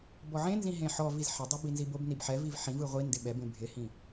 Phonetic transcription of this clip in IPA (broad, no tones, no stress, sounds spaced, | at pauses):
b ɔ ʕ ẽ n z ĩ ɦ ẽ ħ ɔ v i z ħ ɪ dˤ o b i n z i b o b n i b ħ ɛ v i v ħ ĩ v ɯ ʁʷ i n d ɪ ɓ ɛ b ẽ bʱ ɪ h ĩ